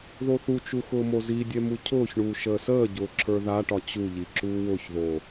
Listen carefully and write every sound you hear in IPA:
ðoθut͡ʃu xʊːmozidʲɛ mucʰʊːçɳuː ʃəːsəːɟʊː ǁʰə˞ðaʈɒ t͡ɕuʎi ǁuːwʊçðo

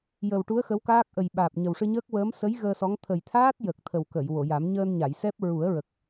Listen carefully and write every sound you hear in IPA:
jə˨˩wʈu˧˥ə̯ xə˧˥wkaː˦˥k̚ ʔə˨˩jɓaː˨˩p̚ ɲə˨˩wʂɨ˧ɲəː˦˥k̚ wəː˧˥m sə˧˥j ɣəː˧sɔ˧˥ŋ t̪ʰə˨˩jt̪ʰaː˦˥t̚ jə˨˩k̚ t̪ʰə˨˩wkə˨˩˨j wo˨˩˨ja˨˩˦m ɲəː˧nɲa˨˩˨jsɛ˦˥p̚ ɹu˨˩˦ə̯ɹə˨˩k̚

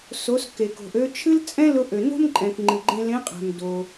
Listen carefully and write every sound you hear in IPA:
so˩˧s ke˩ko̤˩ʔ ø˧t͡ʃʰɨ˥lt͡sʼɛ̃˥lʊ˧ ʔø˩no̤˥mǃʼɛ̃˩k ŋ͡ǃɨ˩ɡ͡ǃẽ˧lẽ˧˥qʼæ̤˩m do˩

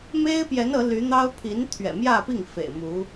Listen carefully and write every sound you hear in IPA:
me˥ɪ̯pjɛ˧˥n ɤ˧˥ ly˧˥n̪ɑ˥ʊ̯ pʰi˧˥nt̪ʰɥɛ̰˨˩mjä˥˧pi˥˩ŋ fḛ˨˩ɪ̯mu˧˥

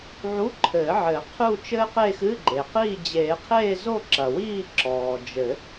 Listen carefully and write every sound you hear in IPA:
ʕu˧˥˧ǃʰɘː˨˩˦ ʕɘ˨˩˦qʰu˥˧t͡ʃɘː˥qe˥˧ xɨ˧˥˧ɡ͡ǃe˩qiː˥˧ d͡ʑeː˨˩˦qʰeː˥˧zo˥˧ ǁɐ˩wiː˥˧ǁɔː˩ d͡ʒɘ˨˩˦

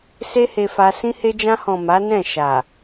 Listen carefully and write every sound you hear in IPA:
se˦he˧fa˧ sĩ˧he˧d͡ʒã˧hɔ̃˨ ma˨˦nɛ̃˦˨ ʃa˨

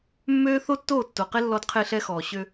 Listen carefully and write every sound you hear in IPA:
mːøː˦ θo˦tːoː˦˨tːo˨qe˦ lːɔ˦dqʰe˦ɬɛ˦xɔː˨ ɕø˦

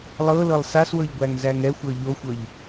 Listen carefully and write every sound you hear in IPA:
lˠɤlɤlˠ saswɤʎɡʷæŋ zæŋɛxʷɤ ʎoxʷɤʎ

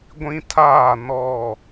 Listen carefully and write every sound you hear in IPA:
ɡʷĩ˦tʰaː˦˨ nɔ˦˨

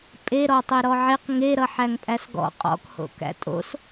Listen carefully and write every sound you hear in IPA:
pʼeɾɔtˤe ɾɔʕeq ŋeɾʌħæŋpʼæs ɡɔ̰ qʼɔ̰kho̰ kæ̰tʼo̰s

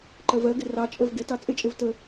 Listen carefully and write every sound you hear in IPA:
ǃɜvɜɡɪ rɑt͡ʃʼəv ɡɪtɑ t͡sʼɪt͡ʃʼɪv tə

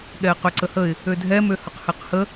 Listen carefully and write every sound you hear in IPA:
ɠɛɪ̯qøǀəhəɪ̯ | ødʱɛ møhəqhɛqhə

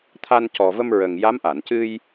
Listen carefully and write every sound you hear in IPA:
t̪ʰa˧ncɔ˨˩və˧m ɹə˨˩ŋ ja˧˥mʔa˨˩˨ncɨ˧j

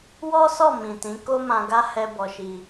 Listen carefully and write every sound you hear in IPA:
wɔ˦sɔ˦˨ mĩ˨tĩ˨˦ ko˦ mã˧ɡa˦ hɛ˧ bɔ˧ʃi˧

